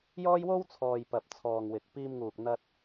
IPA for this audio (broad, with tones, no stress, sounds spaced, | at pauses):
j ɔː˥ j w o˥ w t͡sʰ ɔː˨ j p ɐ˨ p̚ t͡sʰ ɔː˨ ŋ w ɪ˨ k̚ p iː˧ m ŋ uː˨ k̚ n̪ ɐ˧ t̚